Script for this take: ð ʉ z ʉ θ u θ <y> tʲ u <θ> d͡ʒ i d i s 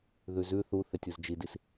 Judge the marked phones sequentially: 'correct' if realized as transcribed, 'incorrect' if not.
incorrect: e, incorrect: z

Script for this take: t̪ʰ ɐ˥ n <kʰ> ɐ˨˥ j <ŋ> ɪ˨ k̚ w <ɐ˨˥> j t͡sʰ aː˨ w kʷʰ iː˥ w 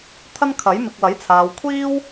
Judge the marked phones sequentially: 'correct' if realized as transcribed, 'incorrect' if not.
correct, incorrect: m, correct

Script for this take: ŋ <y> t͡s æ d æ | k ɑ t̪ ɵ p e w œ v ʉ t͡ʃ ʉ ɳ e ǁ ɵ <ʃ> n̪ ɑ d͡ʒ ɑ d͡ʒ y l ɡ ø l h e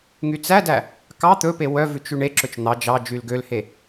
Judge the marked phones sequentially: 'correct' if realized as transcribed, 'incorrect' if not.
correct, incorrect: t͡ʃ

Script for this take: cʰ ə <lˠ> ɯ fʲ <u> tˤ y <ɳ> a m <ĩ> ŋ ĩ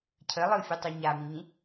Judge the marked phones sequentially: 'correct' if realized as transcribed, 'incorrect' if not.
correct, correct, incorrect: ɲ, correct

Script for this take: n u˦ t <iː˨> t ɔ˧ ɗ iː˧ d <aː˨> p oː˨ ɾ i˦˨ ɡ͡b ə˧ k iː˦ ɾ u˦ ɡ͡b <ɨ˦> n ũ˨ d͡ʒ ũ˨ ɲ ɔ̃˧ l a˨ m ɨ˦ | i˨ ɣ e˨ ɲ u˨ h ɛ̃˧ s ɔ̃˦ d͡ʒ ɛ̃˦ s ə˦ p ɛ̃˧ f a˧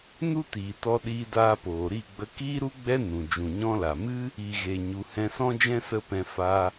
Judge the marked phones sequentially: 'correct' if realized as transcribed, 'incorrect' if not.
correct, incorrect: aː˧, incorrect: ɛ˦

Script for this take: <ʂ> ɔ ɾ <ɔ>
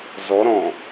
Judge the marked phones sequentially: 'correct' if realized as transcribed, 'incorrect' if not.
incorrect: z, incorrect: ɔ̃

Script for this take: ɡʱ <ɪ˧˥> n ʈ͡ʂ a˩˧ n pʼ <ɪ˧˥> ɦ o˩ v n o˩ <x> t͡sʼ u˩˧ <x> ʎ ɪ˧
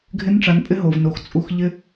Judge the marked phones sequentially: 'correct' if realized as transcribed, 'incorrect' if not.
correct, correct, correct, correct

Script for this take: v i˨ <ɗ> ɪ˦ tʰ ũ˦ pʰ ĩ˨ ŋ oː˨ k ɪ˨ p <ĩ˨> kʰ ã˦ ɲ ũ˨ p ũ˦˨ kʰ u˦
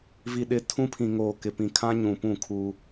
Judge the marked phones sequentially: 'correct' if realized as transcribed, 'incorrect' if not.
correct, correct

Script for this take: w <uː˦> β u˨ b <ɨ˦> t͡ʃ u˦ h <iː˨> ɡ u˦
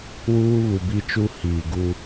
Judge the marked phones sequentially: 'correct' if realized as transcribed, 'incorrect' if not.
correct, incorrect: i˦, correct

